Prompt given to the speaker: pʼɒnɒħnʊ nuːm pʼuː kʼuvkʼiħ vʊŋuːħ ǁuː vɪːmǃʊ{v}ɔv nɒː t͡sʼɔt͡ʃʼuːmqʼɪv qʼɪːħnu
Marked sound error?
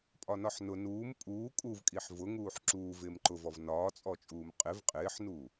no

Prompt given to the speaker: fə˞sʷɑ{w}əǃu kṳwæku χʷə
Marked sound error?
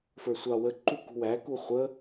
no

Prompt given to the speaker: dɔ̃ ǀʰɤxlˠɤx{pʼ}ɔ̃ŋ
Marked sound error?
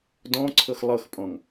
no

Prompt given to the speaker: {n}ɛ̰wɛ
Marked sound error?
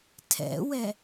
yes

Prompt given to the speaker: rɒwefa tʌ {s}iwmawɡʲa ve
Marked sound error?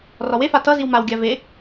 yes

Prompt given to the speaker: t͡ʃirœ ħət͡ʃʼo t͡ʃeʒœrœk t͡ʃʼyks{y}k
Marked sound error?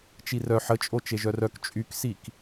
yes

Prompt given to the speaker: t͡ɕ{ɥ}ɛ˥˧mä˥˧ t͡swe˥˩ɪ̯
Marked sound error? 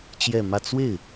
yes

